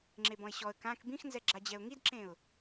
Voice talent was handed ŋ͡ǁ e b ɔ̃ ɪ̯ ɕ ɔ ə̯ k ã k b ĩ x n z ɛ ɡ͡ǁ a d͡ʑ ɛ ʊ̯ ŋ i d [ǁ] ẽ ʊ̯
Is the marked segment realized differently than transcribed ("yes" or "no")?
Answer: no